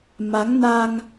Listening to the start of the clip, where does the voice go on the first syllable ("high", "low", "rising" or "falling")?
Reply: rising